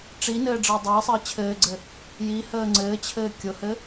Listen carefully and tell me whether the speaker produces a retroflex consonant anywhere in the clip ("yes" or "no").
yes